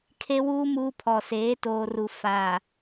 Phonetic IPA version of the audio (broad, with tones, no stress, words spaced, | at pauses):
kʰe˦wuː˦ muː˦pʰɔ˨ seː˨˦ toː˨ru˨ faː˨